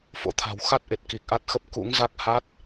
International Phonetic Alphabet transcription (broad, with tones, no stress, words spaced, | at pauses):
fo̰˧˥t̪ʰa̤˨˩w xa˦˥t̚ʔe˨˩t̚ ki˨˩k̚ʔa˦˥t̚xə˦˥p̚ kṵ˧˥ŋza˦˥k̚ ha˦˥t̚